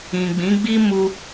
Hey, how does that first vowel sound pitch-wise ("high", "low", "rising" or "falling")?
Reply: low